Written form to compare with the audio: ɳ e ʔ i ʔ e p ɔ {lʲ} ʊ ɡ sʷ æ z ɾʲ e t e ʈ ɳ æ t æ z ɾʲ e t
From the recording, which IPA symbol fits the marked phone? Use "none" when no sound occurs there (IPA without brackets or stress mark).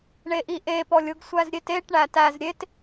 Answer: lʲ